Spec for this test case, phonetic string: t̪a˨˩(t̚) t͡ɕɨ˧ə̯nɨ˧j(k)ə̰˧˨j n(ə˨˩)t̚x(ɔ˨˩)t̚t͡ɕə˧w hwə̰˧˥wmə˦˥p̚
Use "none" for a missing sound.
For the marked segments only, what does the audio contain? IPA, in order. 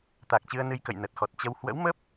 k̚, k, ə˨˩, ɔ˨˩

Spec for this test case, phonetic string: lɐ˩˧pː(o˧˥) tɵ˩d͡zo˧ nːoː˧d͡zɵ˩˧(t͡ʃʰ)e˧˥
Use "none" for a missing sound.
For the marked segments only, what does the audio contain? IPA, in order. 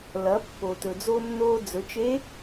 o˩, t͡ʃ

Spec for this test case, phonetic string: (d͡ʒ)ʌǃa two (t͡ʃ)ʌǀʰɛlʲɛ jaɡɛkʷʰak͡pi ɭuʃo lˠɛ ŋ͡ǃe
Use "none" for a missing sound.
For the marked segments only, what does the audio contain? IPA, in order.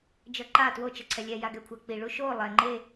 d͡ʒ, t͡ʃ

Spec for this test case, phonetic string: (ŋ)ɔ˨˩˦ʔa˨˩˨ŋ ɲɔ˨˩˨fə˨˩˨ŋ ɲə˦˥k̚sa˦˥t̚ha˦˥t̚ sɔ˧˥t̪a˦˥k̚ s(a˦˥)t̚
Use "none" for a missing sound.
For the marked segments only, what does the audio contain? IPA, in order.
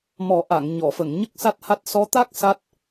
m, a˦˥

